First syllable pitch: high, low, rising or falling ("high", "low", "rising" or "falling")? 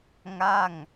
falling